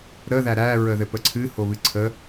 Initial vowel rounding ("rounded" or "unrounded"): unrounded